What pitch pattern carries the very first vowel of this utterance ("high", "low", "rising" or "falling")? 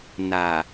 low